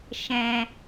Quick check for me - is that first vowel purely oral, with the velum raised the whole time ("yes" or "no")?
no